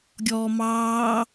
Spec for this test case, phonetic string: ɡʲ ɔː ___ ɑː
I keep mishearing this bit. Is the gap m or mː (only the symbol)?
m